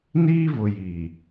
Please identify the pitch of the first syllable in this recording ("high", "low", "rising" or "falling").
high